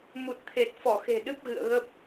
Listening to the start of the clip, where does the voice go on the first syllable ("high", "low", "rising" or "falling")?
low